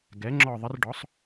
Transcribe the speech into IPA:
ɡ ɛ˩˥ ŋ͡ǁ ɔ˦˨ ðˤ ə˧˥ r ɖ ɔ˩˥ sˤ

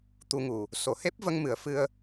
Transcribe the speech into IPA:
t̪ u˧ ŋ u˨˩ | s o˨˩˨ h e˦˥ p̚ v ə˧ ŋ m ɨ˨˩˨ ə̯ f ɨ˧ ə̯

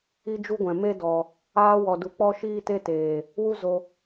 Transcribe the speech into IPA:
i˦ d͡ʒ u˦ ɡʷ ɛ̃˨ m e˦ d ɔ˨ | aː˧ w ɔ˨ d u˨ k͡p ɔ˦ ʃ iː˦ t e˦ t eː˨ | w u˦ z o˧

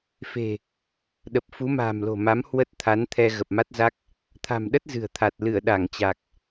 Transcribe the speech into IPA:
f e̤˨˩ | ɗ ə˨˩ p̚ f u˨˦ m a̤ː˨˩ m l o̤˨˩ m a˨˦ m h w ə˦˥ t̚ t̪ʰ a˨˦ n t̪ʰ ɛ˧ ɣ ə˨˩ p̚ m a˦˥ t̚ z a˦˥ k̚ | t̪ʰ a̤˨˩ m ɗ ə˦˥ t̚ z ɨ̤˨˩ ə̯ t̪ʰ a˨˩ t̚ l ɨ˧˩ ə̯ ɗ a˧˩ ŋ t͡ɕ a˨˩ k̚

